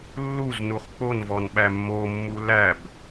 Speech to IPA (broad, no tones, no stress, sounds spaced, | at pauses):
lː u z n u χ k͡p o n v ɔ n ɓ æ mː o mː u l æ b